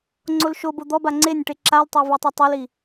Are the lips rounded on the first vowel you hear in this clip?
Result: yes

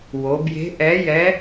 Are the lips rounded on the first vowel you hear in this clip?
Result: yes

